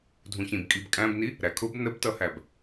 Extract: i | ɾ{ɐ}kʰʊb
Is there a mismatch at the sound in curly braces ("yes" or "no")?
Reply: yes